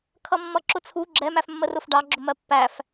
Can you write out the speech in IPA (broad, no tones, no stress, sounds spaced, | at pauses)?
kʰ ʌ mː ʌ ǁ ʊ t͡sʰ u ɡ͡ǁ ɛ m æ f mː ə r ʊ f ɖ ɑ ɡ͡ǁ ʊ m ɜ pː æ f